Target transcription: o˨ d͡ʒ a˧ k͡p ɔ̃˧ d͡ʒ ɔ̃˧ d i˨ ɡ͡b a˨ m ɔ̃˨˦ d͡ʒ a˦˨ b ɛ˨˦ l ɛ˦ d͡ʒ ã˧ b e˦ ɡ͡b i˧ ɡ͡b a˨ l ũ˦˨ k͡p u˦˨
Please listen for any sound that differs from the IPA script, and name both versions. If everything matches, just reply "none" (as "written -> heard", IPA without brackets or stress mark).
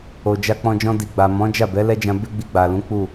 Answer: ũ˦˨ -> ũ˨˦